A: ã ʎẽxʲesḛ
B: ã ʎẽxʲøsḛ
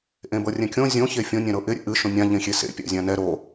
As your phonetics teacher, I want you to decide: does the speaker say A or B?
A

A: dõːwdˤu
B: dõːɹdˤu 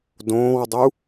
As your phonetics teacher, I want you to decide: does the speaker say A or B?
A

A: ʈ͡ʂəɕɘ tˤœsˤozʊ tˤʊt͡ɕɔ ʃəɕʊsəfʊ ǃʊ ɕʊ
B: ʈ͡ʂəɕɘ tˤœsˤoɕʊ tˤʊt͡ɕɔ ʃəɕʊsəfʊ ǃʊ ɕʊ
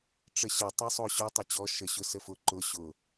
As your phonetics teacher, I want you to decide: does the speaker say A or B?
B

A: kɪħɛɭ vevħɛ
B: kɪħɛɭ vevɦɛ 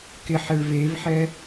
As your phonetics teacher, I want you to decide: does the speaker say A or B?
A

